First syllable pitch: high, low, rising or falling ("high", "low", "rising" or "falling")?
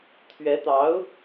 rising